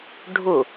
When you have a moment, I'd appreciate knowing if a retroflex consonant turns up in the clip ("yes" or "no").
yes